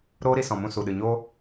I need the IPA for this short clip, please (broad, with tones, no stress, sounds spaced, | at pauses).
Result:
ɾ oː˦ ɾ i˧ s ɔ̃˨ m ũ˧ s u˨ ɗ ɨ˨ ɲ o˦